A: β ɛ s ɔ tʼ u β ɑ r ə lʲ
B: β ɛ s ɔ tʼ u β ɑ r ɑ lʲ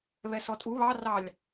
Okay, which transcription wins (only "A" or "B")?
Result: B